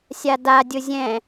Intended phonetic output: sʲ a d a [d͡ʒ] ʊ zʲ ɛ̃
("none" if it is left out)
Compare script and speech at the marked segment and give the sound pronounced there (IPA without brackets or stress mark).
dʲ